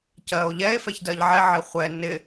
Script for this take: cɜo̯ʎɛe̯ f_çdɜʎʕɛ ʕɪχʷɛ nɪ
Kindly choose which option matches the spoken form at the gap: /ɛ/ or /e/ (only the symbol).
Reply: ɛ